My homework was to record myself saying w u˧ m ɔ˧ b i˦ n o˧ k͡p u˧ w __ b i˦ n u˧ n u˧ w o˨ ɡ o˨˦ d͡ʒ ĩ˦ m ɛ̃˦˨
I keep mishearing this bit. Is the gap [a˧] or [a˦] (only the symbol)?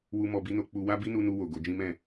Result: a˦